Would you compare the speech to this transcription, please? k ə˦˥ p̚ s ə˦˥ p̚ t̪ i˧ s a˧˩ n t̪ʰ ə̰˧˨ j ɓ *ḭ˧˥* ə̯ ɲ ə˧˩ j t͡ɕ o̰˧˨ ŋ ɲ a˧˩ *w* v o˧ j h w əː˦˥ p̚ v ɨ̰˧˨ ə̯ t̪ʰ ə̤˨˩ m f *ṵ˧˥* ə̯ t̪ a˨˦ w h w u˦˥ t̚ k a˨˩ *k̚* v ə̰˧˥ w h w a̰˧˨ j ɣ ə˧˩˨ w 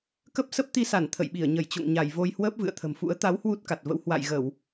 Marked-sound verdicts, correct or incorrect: incorrect: i˧˩, incorrect: j, correct, incorrect: t̚

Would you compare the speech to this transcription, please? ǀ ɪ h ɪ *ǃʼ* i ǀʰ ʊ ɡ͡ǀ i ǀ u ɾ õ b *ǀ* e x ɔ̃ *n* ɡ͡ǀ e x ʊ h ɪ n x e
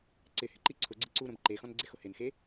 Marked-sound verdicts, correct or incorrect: incorrect: ǃ, incorrect: ǃ, correct

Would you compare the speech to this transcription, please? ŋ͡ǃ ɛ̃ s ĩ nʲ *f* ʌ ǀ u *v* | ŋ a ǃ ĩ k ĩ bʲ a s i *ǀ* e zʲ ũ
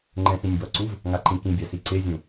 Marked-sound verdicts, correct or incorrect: incorrect: b, correct, correct

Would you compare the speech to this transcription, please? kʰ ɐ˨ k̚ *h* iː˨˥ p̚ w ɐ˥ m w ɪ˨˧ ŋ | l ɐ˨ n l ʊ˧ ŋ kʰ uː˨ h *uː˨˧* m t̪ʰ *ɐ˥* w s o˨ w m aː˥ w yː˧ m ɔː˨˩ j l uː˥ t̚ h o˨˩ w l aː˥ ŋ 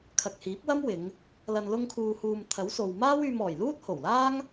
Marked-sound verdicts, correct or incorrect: correct, incorrect: uː˨, incorrect: ɐ˨˥

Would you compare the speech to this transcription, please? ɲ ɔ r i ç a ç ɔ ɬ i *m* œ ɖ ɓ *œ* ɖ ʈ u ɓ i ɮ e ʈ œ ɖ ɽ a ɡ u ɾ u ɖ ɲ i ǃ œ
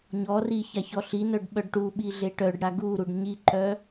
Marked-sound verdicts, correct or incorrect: incorrect: n, correct

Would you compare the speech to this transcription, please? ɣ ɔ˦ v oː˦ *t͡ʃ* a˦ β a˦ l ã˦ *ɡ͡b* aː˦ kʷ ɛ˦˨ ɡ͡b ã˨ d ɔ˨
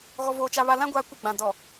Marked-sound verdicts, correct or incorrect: correct, incorrect: ɡʷ

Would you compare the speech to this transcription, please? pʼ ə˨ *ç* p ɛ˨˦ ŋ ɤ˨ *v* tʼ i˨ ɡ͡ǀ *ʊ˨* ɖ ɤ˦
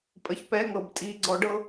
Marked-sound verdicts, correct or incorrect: correct, incorrect: b, incorrect: ɔ˨

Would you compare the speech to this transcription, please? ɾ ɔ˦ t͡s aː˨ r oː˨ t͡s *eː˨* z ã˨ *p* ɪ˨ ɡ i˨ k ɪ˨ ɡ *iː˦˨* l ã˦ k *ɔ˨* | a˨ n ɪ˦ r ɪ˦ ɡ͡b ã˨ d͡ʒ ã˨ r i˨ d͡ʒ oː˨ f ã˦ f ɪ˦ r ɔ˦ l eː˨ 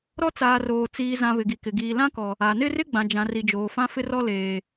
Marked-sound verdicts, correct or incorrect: incorrect: iː˨, incorrect: β, incorrect: iː˨, correct

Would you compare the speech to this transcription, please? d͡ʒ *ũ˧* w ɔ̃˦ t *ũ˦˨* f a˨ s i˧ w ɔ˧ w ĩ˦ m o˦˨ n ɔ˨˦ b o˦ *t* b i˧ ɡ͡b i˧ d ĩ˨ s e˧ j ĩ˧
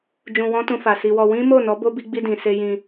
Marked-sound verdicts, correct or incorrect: correct, incorrect: ũ˧, incorrect: none

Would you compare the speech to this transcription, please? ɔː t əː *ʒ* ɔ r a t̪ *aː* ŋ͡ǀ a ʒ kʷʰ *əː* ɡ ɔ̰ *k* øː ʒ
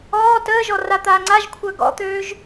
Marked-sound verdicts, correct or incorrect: correct, correct, correct, incorrect: t̪

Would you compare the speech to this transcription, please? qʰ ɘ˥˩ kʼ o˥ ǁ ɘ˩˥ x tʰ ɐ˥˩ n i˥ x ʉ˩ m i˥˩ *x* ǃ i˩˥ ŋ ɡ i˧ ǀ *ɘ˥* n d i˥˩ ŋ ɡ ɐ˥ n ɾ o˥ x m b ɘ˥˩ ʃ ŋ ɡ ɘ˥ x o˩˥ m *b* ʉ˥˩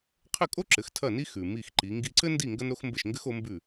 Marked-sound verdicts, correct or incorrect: correct, correct, correct

